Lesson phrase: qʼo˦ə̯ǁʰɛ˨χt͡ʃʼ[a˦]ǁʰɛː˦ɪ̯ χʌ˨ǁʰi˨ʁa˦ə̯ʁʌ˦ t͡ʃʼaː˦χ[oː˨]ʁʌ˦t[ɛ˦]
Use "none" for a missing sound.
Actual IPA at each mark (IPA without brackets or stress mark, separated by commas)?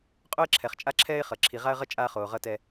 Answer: a˦, oː˨, ɛ˦